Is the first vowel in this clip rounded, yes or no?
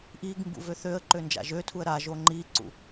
no